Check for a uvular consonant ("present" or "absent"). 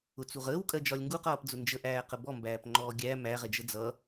present